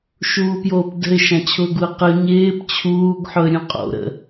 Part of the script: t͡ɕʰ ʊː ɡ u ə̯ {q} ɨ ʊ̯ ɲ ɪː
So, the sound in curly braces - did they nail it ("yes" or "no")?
yes